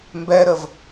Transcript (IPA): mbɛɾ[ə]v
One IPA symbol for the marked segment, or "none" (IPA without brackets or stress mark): ə